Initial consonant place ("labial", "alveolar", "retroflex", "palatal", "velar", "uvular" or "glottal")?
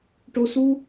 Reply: retroflex